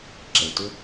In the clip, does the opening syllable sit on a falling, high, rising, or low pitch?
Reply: low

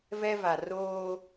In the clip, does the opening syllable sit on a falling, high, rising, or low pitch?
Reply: high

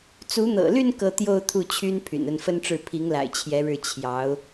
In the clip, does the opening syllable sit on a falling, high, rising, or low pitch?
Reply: rising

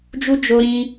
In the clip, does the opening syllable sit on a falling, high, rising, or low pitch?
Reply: high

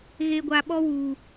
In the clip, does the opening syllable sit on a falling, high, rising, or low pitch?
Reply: low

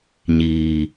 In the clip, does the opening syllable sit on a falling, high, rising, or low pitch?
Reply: low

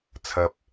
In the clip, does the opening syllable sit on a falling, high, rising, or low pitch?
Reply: low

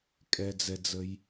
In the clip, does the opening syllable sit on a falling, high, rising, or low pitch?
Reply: low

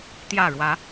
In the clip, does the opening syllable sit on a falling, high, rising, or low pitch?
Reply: falling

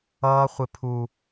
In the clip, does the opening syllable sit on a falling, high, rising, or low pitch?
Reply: high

